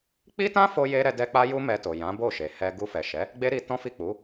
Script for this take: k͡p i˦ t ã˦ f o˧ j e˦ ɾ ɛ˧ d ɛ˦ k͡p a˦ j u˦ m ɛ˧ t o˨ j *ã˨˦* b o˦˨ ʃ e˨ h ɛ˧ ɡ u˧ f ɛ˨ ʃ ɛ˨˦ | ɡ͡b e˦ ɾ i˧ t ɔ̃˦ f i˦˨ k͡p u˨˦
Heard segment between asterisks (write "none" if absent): ã˨˦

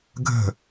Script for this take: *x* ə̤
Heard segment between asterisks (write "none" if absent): ɡʱ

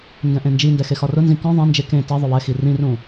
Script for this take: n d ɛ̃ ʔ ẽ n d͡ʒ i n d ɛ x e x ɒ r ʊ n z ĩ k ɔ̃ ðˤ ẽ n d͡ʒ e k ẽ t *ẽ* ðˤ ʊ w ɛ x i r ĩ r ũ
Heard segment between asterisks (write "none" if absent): e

